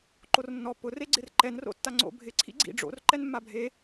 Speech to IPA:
ǃ o r nː ɔ p ʊ r e ɡ͡ǀ ɪ r ǃ ɛ n r o̰ tː a ŋ͡ǀ o̰ bʱ ɪ ǀʰ ḭ ɡ͡ǀ ḭ ɖ͡ʐ o̰ r ǃ ɛ n mː a bʱ e

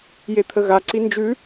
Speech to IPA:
j e t̪ʰ ə ɣ a ǀ i n d͡ʒ ʉ

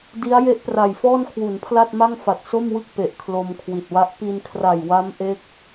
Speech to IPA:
d i˦˥ a̯ j e˦˥ ʔ p r a˨˩ j f ɔː˥˩ n kʰ w u˩˦ n pʰ l a˥˩ t̚ m a˥˩ ŋ f a˨˩ t̚ s o˥˩ m w ɯ˥˩ k̚ p e˨˩ ʔ kʰ l o˧ m kʰ w i˨˩ t̚ w a˦˥ ʔ p i˧ n kʰ r a˨˩ j w a˦˥ m ʔ e˦˥ k̚

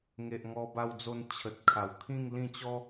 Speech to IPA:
ŋ e˨ ʔ ŋ ɔ˧ b a˧ w d͡z o˧ n t͡ɕʰ ə˨ t̚ kʰ a˨˩ w kʰ ĩ˥˧ ŋ l ĩ˥˧ t͡ɕ ɔ˦

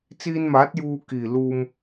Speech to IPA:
t͡s iː˧ n m aː˨˥ t̚ j uː˧ k iː˨˩ l uː˧ m

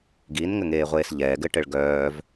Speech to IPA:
ɡ i n ŋ ɘ ŋ eː ʁʷ eː s ʎ ɛː ɡ ɘ ʈ ɘ ɭ ɡ œː v

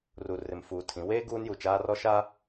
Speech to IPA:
r u˨ r ɪ˨ m f uː˨ tʰ ĩ˨˦ w eː˦ ɡ uː˦ n j u˨ t͡ʃ aː˦ r ɔ˦ ʃ a˦

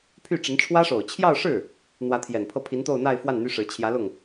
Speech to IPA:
pʰ y˥˩ ʈ͡ʂ ə˧˥ n ʈ͡ʂʰ w ä˥ ʂ o˨˩ ʊ̯ t͡ɕʰ j ɑ˥˧ ʊ̯ ʂ ɻ̩˥˩ | n̪ w ä˧˥ t̪ʰ j ɛ˨˩ n pʰ ɤ˥˩ pʰ i˧˥ n t̪ o˥˧ ʊ̯ n̪ a˥˧ ɪ̯ f w a˥˩ n n̪ y˥ ʂ ɻ̩˧˥ t͡ɕʰ j ä˧˥ l ʊ˥˩ ŋ

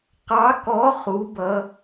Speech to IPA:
q ɑ˨˥ k ɔ˨˥ χ u˩˧ b ʌ˩˧

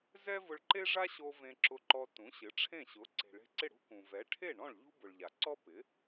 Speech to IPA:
z ɛ˥ v ʊ˧ ɭ ǃ e˥ ʐ a˥ ɕ o˧ v ẽ˧ ǁ ʊ˧ ǃ ɔ˧ t ũ˩˥ ɕ ɪ˩˥ ʈ͡ʂʰ ẽ˥˩ ɕ ʊ˩˥ ǀ e̤˩ ɭ e̤˧ ǀ ɪ˥˩ ɽ ṳ˥ k ũ˩ v ɛ˩˥ ʈʰ e˥˩ ɳ ɔ̃˥˩ ɭ ʎ ṳ˥ b ʊ˩ ɭ ʎ a˩ ǀ ɔ˥ p ɪ˩˥

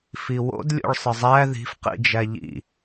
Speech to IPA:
f i w o̰ d lʲ o̰ ɭ sˤ ə zˤ æ ð i̤ f q ḭ d͡ʒ æ ʎ ḭ

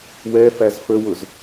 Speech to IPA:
w ɛ f æ z f ə w ʊ z

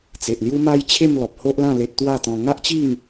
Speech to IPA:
t͡s e˨ ʔ l j u˦ m a˦ j t͡ɕʰ e˥˧ m l ɔ˨ p̚ h o˦ ʔ l ã˥˧ l e˦ t̚ t̪ w a˥˧ t̪ ɔ̃˧ ŋ a˦ ʔ t͡ɕ i˥˧ ŋ

